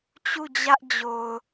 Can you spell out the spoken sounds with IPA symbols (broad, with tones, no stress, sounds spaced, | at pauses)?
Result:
t͡ɕ u˦˨ d͡ʑ ä˦ ʔ d͡ʑ o˨ ʊ̯